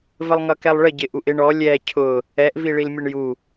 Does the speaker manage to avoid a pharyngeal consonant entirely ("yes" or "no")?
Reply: yes